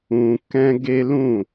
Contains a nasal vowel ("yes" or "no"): yes